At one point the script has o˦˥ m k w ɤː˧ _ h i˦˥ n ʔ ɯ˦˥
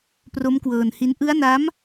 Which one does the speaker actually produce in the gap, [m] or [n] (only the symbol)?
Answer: n